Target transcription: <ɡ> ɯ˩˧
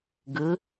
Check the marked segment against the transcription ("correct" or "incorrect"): correct